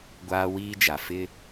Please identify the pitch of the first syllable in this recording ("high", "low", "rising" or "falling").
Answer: high